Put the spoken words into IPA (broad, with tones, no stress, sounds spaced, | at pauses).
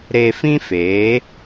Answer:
ɾ e˧ f ĩ˦ f eː˨˦